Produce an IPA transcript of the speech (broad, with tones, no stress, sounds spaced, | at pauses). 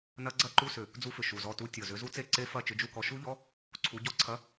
n ɐ˧˥˧ ɡ͡ǀ ɐ˦˥ ǃ u˧˥˧ s ʏ˨˩ | d͡z u˦˥ f ʏ˨˩ ʃ u˨˩ z ɔ˦˨ t u˧˥˧ tʲ ɔ˨˩ z ʏ˨˦ z u˦˥ t͡s e˦˨ ǀ e˦˥ f ɐ˦˨ t͡ʃ ʏ˨˦ d͡ʒ u˦˨ k ɔ˨˦ ʃ u˦˥ ʎ ɔ˧˥˧ | ǀʰ u˨˦ ɟ ɔ˦˥ ǀʰ ɐ˧˥˧